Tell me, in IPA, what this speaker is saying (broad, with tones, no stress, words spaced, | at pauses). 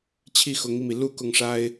t͡ɕʰi˥˩xʊ˧˥ŋi˧mi˩ lu˥˧ kʊ˥˩ŋʂa˥ɪ̯